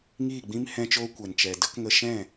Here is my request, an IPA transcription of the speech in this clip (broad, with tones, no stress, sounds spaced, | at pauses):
ŋ iː˦˨ ɡ͡b ĩ˦ m h ɛ̃˦ t͡ʃ oː˦ kʷ ɛ˨ n t͡ʃ ɛ˨ d ə˦ k ŋ ə˧ ʃ ɛ̃˦˨